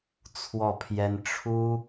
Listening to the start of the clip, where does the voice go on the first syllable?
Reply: falling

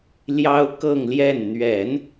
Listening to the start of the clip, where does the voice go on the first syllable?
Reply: high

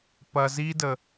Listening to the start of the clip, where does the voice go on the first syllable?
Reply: low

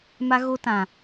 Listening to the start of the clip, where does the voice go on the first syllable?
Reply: high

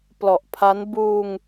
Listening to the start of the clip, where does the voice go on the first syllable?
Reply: low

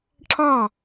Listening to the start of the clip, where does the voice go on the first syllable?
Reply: falling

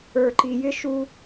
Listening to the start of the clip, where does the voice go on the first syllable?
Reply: low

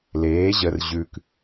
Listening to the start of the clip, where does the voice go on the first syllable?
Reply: rising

